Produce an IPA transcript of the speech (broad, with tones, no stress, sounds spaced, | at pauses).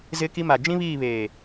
z ɪ˦ k i˦ m a˨ d͡ʒ ĩ˦ β iː˦˨ β eː˨